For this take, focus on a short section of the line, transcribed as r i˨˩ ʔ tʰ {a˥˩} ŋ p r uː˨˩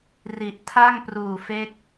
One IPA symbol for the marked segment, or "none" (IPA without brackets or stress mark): a˥˩